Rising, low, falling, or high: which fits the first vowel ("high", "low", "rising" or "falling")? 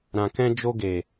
low